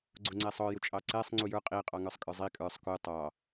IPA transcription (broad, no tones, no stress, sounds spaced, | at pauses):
ɡ͡ǀ ʊ ŋ͡ǀ ɛ sˤ ɔ j ʊ t͡ʃʼ ɑ ǀ ɛ sˤ ŋ͡ǀ u j ə˞ qʼ i qʼ ɑ ŋ ə˞ sˤ kʼ ə˞ zˤ i kʼ ə˞ sˤ k u tˤ ɑ